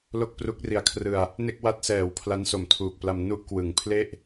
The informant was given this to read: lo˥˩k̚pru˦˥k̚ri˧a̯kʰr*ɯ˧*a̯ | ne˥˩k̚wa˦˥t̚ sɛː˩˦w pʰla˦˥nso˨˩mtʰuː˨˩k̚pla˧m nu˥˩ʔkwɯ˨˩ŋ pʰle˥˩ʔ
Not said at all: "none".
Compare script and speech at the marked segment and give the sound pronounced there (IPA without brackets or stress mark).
ɯ˧